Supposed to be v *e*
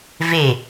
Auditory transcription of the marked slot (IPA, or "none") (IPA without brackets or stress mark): e